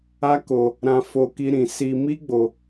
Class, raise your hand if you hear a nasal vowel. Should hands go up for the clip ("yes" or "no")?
yes